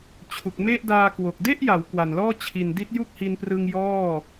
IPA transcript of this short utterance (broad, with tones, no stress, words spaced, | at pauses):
t͡ɕʰu˨˩k̚me˥˩ʔdaː˧kwo˨˩k̚ de˥˩ʔja˩˦w kwa˨˩nlɔː˥˩ t͡ɕʰi˨˩ndi˦˥t̚ju˥˩k̚hi˧n prɯ˧ŋjɔː˥˩